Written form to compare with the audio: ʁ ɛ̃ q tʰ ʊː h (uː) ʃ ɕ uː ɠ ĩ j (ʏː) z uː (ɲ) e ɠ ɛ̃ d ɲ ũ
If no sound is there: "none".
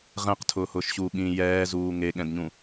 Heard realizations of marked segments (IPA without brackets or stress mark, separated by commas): ʊː, ɛː, ŋ